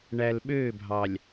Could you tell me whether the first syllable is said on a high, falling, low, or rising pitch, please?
low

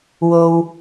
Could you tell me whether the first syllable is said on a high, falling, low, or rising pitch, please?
low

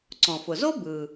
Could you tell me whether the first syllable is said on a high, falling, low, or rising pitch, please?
low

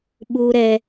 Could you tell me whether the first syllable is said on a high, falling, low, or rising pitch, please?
high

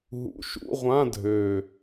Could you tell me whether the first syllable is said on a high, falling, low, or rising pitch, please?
low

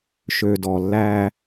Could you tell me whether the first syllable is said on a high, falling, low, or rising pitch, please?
low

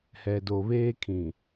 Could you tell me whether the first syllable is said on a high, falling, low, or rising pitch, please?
low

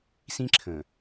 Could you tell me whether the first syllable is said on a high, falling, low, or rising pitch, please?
high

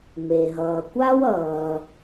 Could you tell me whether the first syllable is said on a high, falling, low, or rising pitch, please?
low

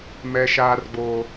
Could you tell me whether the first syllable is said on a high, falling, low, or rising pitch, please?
low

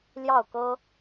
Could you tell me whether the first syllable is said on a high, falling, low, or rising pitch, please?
falling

